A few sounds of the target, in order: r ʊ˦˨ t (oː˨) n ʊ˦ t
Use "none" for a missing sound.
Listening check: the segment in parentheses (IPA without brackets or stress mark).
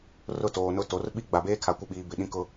oː˨